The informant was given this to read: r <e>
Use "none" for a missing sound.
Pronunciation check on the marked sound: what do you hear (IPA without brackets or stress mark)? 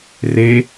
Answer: e